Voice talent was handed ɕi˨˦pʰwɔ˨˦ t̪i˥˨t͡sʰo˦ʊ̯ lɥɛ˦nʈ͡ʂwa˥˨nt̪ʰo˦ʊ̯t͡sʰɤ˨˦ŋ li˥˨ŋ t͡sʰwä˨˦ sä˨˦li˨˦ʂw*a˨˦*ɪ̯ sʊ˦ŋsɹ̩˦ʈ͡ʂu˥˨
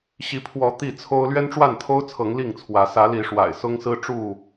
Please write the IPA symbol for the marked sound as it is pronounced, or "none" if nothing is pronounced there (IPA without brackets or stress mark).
a̰˨˩